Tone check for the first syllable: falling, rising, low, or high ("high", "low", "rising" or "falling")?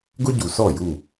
high